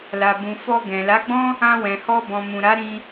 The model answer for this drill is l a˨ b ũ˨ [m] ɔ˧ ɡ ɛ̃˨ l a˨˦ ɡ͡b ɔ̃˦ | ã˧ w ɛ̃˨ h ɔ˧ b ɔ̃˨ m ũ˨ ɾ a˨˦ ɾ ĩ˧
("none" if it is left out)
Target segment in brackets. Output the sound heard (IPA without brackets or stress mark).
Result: f